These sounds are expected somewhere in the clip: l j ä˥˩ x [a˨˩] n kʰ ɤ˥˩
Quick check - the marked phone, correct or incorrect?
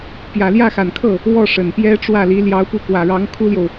correct